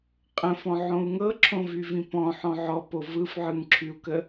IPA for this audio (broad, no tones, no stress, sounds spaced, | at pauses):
qʼ ə̃ f ɔ̃ ʕ õ u̯ ŋ ɤ ǁʰ õ v y v ĩ p ɔ̃ ħ ɔ̃ ʕ ɔ p o v ɯ f ʕ ɯ ŋ ǁʰ y u̯ k ə